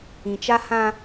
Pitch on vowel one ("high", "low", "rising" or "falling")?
low